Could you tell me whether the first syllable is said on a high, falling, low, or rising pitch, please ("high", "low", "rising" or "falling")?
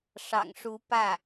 low